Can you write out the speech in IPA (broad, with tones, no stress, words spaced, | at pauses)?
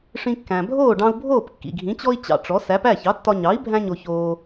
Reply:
ʂĩ˧kːæ̃˩ bʱoː˥˩ɖɑ̃˧u̯bʱoː˥˩p kːḭ˩ɡʱĩ˩˥t͡ɕɔ˥i̯ t͡ɕɑ̰˧ʈ͡ʂɔ˩˥ sæ˩˥p æ˥˩çɑ˩˥tːɒ˧ɲɑ˩˥i̯ bʱæ̃˥ɲo˧çoː˧